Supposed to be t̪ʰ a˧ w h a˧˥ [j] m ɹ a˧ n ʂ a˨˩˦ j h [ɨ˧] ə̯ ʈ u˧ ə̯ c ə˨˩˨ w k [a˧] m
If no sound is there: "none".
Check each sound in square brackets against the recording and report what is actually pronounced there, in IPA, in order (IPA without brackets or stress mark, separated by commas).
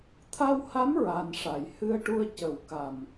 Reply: none, ɨ˧, a˨˩